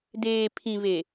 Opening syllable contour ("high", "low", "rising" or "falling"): low